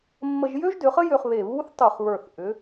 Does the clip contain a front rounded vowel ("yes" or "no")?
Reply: yes